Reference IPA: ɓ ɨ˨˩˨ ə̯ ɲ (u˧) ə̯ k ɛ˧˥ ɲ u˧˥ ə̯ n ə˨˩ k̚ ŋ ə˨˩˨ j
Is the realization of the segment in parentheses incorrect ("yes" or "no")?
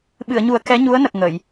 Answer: yes